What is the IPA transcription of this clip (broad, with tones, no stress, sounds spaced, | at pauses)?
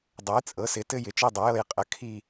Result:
dˤ ɘ˩˥ j t͡sʼ ɤ˩˥ s ɪ˩˥ t ɘ˦˨ j ɪ˩˥ t͡ʃ i˦˨ dˤ ɪ˩˥ j ɤ˦˨ j qʼ ə˩˥ kʰ i˦˨